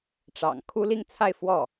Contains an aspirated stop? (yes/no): yes